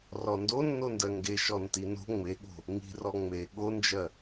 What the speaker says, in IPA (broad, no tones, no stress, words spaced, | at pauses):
rɔndo nːondɜŋɡe ʃɔntino̤ ŋ͡meɠo̤ | ŋi̤rɔ ŋ͡me ɠond͡ʒɜ